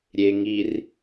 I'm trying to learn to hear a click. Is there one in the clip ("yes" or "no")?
no